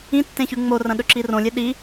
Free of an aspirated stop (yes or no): yes